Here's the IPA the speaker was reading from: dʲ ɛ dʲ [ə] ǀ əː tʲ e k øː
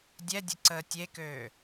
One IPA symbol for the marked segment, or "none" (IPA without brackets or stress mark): ə